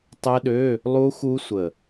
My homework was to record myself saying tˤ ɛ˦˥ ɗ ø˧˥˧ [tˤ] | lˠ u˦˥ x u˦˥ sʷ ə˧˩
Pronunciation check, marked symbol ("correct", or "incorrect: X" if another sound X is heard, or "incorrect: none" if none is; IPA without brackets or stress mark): incorrect: none